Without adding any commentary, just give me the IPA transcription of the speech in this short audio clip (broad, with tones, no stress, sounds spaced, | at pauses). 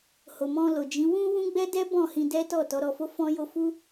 h o˨ m ɔ̃˧ l o˨ d͡ʒ ĩ˨˦ w ũ˦ w ũ˦ ɡ͡b ɛ˦ d ɛ˦ b ɔ̃˦˨ h ĩ˧ d ɛ˦ t ɔ˦˨ t ɔ˨˦ ɾ ɔ˧ f o˦ f ɔ̃˦ j o˦ f u˦